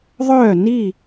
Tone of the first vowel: falling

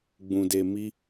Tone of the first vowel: low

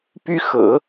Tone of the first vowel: high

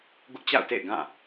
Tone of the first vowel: high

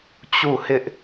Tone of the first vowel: falling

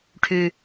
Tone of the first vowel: low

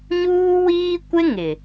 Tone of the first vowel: high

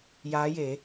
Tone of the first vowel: rising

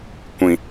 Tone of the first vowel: low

